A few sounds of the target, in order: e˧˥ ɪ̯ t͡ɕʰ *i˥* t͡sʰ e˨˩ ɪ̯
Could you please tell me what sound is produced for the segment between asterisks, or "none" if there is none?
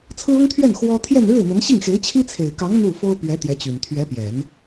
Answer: i˥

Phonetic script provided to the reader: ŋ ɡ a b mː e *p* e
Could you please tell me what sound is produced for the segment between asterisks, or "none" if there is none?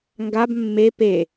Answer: p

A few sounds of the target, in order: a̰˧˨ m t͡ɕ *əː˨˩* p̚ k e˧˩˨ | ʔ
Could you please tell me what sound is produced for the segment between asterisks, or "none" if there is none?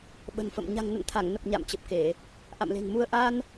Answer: ə˨˩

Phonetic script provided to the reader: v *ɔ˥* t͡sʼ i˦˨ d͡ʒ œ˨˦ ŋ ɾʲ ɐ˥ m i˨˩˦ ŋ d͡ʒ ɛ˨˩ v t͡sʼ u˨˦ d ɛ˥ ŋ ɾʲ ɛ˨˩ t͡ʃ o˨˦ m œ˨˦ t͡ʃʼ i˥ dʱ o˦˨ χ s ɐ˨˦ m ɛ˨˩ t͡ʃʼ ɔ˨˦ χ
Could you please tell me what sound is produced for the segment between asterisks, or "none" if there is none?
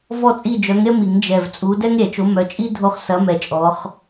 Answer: ɔ˦˨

